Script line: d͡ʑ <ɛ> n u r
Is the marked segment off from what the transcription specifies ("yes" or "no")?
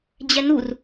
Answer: no